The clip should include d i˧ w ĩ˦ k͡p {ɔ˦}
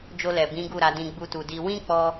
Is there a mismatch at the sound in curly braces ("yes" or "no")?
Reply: no